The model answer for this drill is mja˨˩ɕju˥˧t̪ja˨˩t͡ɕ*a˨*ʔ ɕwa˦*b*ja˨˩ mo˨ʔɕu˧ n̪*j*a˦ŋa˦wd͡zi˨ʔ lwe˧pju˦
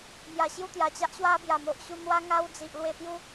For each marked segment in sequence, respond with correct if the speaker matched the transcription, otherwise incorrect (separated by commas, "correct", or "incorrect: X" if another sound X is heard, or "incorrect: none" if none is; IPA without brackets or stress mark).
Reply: incorrect: a˦, correct, incorrect: w